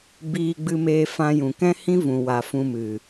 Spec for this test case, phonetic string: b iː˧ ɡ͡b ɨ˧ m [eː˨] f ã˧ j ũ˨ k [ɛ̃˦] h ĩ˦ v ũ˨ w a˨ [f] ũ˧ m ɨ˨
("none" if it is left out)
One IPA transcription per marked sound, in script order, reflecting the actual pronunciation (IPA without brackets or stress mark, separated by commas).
eː˧, ɛ̃˦, f